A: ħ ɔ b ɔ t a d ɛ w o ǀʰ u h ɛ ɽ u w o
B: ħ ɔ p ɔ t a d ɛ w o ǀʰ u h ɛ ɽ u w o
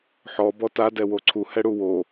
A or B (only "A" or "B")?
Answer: A